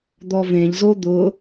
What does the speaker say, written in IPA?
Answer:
d̪ɔvẽʎzo d̪ʊ

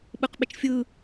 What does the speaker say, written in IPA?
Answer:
ɓɯqɓɪt͡ʃfʲɯ

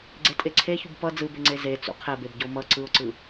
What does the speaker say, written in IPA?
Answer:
ɡ͡ǀetʼeǀʰeçub pʌ d͡zɯbeŋ͡ǀe ze t͡sṵqʰɛbebɟo mʌ ǀɯʊ̯ǀɯ

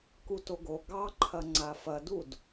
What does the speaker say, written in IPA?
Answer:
kutoɡo ɡɑǃʰɐ ŋ͡ǀafɐdud

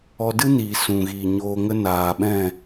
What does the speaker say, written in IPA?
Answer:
ɔ˧dɨ˦niː˨ sũ˨ɣiː˨ɲoː˧ŋə˦ naː˨ɓɛ̃˦˨

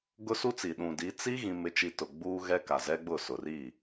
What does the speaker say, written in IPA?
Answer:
ɡʊ˦su˦t͡si˨ ɗũ˨di˨˦ t͡si˦ ɣĩ˦mɪ˦t͡ʃi˦ tʊ˨ ɡ͡buː˦ɣɛ˦ ka˨zɛ˦ɡ͡bʊ˦˨ sʊ˨ri˦˨

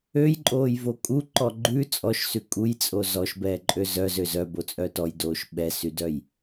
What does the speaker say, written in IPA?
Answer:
øjǃʼoːjvo kʼuǃɔ ɡ͡ǃʉ t͡sʼɔʃsʉ kʼujt͡sʼo zɔʃbɛːǃʼø zœzø zœbot͡sʼœ tɔjdoːʃ ɓɛsydœj

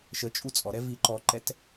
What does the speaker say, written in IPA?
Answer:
ʃət͡ʃʼu t͡sʼɔɾɛ viǃɔǃɛt

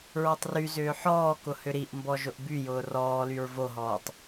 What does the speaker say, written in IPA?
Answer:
ɹɔtˤryzʏː ħɔːkʊ hʏɾiʔmbɔ ʒʊʔbyjʊː rɔːlyɹ voɦɔːtˤ

